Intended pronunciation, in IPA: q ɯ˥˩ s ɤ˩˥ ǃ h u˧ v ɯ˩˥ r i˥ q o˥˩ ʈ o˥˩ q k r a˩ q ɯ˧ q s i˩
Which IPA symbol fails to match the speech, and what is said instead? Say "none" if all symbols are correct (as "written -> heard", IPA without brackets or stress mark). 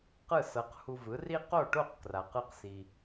ǃ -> q